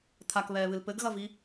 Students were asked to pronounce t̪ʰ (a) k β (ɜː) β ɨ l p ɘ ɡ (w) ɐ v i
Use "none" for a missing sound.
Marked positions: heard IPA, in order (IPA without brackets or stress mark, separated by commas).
a, ɛː, ɣ